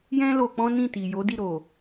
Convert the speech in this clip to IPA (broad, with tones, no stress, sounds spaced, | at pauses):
j ɛ̃˦ l o˧ k͡p ɔ̃˦ n ĩ˦˨ t i˨ j o˨˦ d i˦˨ ɾ o˨